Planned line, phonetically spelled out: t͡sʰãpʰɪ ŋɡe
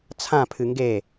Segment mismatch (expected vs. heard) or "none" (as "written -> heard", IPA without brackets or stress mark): ɪ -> ɨ